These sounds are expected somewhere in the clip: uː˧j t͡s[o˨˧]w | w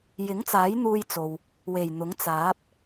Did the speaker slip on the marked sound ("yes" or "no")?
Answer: yes